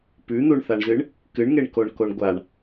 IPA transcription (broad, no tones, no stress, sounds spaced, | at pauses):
p ʉ n̪ u ɳ θ a ɳ z ɨ ɳ | k ɨ ɳ ŋ e ɳ k o ɳ k o ɳ ɡʷ a ɳ